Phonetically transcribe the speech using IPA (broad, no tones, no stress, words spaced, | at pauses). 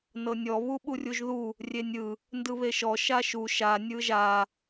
nɤnʲɔ βuɓurʲuʒðu | rʲenʲɯ | ndɯβeʃɔ ʃaʃu ʃa nʲɯʒa